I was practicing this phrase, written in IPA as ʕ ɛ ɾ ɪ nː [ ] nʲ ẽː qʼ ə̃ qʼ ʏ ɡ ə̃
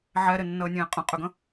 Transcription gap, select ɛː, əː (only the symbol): əː